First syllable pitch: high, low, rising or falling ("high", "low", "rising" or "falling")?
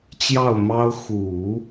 falling